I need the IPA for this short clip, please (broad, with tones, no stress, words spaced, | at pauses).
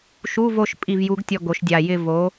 ʃu˧˥˧vo˦˨ʃ pʼi˦˨vju˧˥ɡtʲɔ˦˨ ɡo˩˧ʃdʲa˨˩jɪ˦˨ vo˩˧